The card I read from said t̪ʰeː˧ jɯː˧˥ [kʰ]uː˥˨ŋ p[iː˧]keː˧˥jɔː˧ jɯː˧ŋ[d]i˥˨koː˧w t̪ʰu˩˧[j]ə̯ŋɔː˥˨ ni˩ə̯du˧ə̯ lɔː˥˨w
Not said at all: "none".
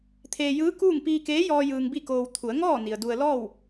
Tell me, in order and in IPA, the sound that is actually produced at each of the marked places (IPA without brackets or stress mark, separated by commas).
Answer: k, iː˧, b, none